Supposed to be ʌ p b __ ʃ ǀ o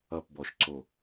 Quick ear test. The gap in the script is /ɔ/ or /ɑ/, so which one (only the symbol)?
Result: ɔ